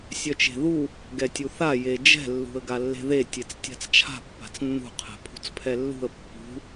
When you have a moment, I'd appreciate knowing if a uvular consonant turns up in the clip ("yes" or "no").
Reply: yes